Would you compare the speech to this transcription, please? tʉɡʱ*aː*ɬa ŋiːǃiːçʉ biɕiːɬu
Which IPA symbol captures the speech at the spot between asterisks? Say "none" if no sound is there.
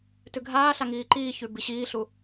aː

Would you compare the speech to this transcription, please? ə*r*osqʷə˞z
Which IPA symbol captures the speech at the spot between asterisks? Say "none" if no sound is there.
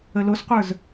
l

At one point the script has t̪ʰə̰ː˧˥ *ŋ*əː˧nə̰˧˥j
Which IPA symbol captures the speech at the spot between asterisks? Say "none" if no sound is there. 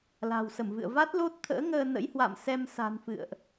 ŋ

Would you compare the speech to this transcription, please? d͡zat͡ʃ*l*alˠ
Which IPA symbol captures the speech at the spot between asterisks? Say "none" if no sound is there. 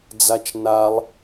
n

